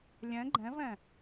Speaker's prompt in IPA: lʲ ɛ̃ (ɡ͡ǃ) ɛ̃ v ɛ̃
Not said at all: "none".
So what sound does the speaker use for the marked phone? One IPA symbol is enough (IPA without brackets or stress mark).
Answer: ɡ͡ǃ